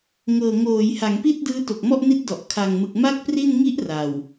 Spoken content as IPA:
ŋ ɤː˨˩ ŋ oː˩˦ j h a˩˦ ŋ p i˥˩ t̚ d ɯː˦˥ t o˨˩ k̚ m ɔ˥˩ ʔ n i˦˥ t̚ d ɔ˨˩ ʔ kʰ a˨˩ ŋ m ɯ˨˩ k̚ m a˥˩ k̚ p r i˥˩ n ŋ i˦˥ ʔ r a˨˩ w

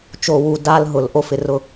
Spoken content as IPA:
t͡ʃ o˨ w u˨ d a˦ l ɦ ʊ˨ l ʔ o˦ f ɪ˨ r ʊ˦˨

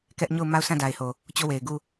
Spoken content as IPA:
k ɛ˦ ʔ ɲ o˦˨ ʊ̯ m a˦˨ ʊ̯ s ã˦˨ d a˨ ɪ̯ h o˨ | t͡ɕ o˦˨ w e˨ ɪ̯ ɡ u˦˨

